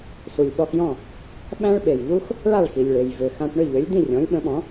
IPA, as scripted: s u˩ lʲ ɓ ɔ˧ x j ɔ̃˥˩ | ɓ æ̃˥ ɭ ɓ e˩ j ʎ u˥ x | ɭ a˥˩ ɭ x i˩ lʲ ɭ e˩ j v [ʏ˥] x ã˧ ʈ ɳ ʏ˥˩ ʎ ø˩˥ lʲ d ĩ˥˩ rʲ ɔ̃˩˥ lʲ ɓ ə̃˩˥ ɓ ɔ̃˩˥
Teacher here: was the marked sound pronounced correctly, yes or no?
no